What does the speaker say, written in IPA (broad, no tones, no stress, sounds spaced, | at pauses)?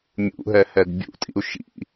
mʲ ṵ ɦ ɛ h ɛ d bʲ ṵ tʼ ḭ u̯ ʃ ḭ